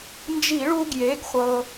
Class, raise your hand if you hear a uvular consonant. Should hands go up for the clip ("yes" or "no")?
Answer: yes